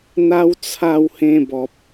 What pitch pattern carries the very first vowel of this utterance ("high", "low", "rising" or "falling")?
high